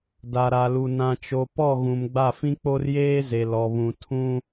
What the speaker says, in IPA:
d a˨ ɾ a˨ l u˨ n ã˨ t͡ʃ o˨ p ɔ˦˨ ɣ ũ˨ m ɡ͡b a˦˨ f ĩ˦ k͡p o˦ r j eː˦ z e˨ l ɔ˨ β ũ˨ tʰ ũ˦

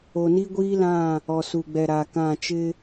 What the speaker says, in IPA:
o˨ n i˦ ɡʷ iː˦ l ã˦˨ | ɔ˨ s u˨ ɡ͡b ɛ˨ ɾ a˨ k ã˦˨ t͡ʃ ɪ˦

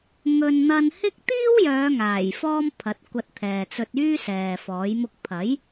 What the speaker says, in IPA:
ŋ ɵ˧ n n̪ ɐ˧ n h ɪ˥ k̚ t̪ iː˥ w j œː˨˧ ŋ aː˨˩ j f ɔː˧ m pʰ ɐ˨˥ t̚ kʷ ɐ˧ t̚ t̪ʰ ɛː˨ t͡s ɵ˧ t̚ yː˥ s ɛː˨ f ɔː˨˥ j m ʊ˧ k̚ pʰ ɐ˨˥ j

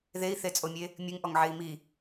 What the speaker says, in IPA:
ð e i̯ θ e t͡sʼ o mʲ e | mʲ ɨ ŋ ʔ ɔ ŋ ʕ e i̯ m i

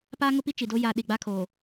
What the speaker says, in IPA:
p aː˦ ŋ ʊ˦ p i˦ t͡ʃ i˨ d o˦ j a˦ ɗ i˨ ɡ͡b a˦ kʰ oː˨

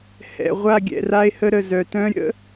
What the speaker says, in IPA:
h ɛ̰˨ ʁʷ a˦˨ ɡʲ ɛ̰˨ r a˦ e̯ h ə˦ ɾ ə˨ z œ˨ t œ̃˦ ɾʲ ə̰˦

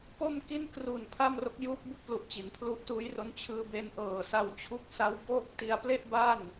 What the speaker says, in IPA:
p o˥˩ m k i˥˩ n k r u˨˩ n pʰ a˥˩ m r o˦˥ k̚ j uː˦˥ p̚ b u˦˥ k̚ p l u˨˩ ʔ t͡ɕ i˩˦ n pʰ l u˦˥ ʔ t uː˦˥ j r o˦˥ n t͡ɕʰ ɯː˧ b e˧ n ʔ ɤː˨˩ s a˧ w t͡ɕʰ u˦˥ k̚ s a˦˥ w b oː˥˩ k̚ t i˧ a̯ p l e˥˩ ʔ b a˥˩ n

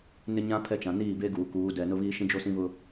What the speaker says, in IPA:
n ɪ˦ ɲ ã˦ pʰ ɛ˦ t͡ʃ ã˨ n iː˦˨ b e˦ ɡ uː˨ k uː˨˦ d ɛ˨ n ʊ˦ β iː˦ ʃ ĩ˦ d͡ʒ o˦ s ĩ˦ β ʊ˦

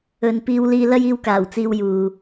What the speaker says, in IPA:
ɵ˨ n p iː˧ w l iː˧ l ɐ˥ j iː˧ w k aː˨˩ w t͡s iː˧ w j uː˨

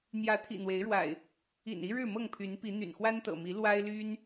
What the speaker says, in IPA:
n̪ j ä˨˦ t̪ʰ ḭ˨˩ n̪ w e˨˦ ɪ̯ ɻ w a̰˨˩ ɪ̯ | ḭ˨˩ n i˦ ɻ ɻ̩˥˨ m ɤ˥˨ ŋ pʰ y˨˦ n p i˨˦ n̪ y̰˨˩ n x w a˦ n t̪ ɤ̰˨˩ m i˨˦ l w a˦ ɪ̯ l y˦ n

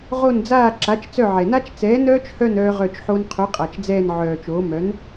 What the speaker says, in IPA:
ʁ o˦˨ n d͡z aː˦˨ ǁ a˨˥ t͡ʃ t͡s œ˦˨ ʕ ɛ˨ n a˦˥ t͡ʃ t͡s ɛː˨˥ n œː˦˥ t͡ʃ h œ˦˨ n œː˦˥ ʁ œ˦˨ t͡ʃ ħ o˦˥ n qʰ o˨˥ qʼ a˨ t͡ʃ d͡z ɛː˦˨ n ʕ œː˨ t͡ʃ oː˨˥ m œ˨˥ n

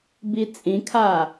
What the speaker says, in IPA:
b i t͡sʼ ĩ kʰ aː

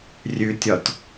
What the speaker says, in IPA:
rʲ ʉ tʲ ɒ t

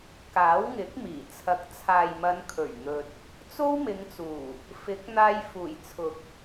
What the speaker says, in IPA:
k aː˨˥ w ŋ ɪ˨˥ k̚ m iː˨˩ t͡sʰ ɐ˨˥ k̚ t͡sʰ aː˨ j m ɐ˨˧ n kʰ ɵ˨˩ ɥ n̪ ɵ˨ t̚ | t͡s o˥ w m ɪ˨˧ ŋ t͡s uː˨˩ | f ɪ˨˥ k̚ n̪ aː˧ j f uː˨˩ j t͡sʰ ʊ˨ k̚

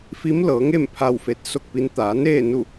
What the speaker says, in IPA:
f i˧˥ m l ɤː˩˧ ŋ e˥˨ m pʰ a˥˨ w f e˧˥ t̚ s o˥˨ k̚ p i˧˥ n t̪ aː˩˧ n eː˥˨ n u˥˨

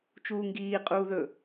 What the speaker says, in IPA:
t͡ʃ uː ŋ ɡ iː qʼ uː ð ɵ

